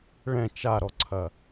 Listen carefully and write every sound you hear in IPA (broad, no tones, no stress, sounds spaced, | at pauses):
ɭ ɛ̃ t͡ʃ a ɾ ɔ ǀʰ ɐ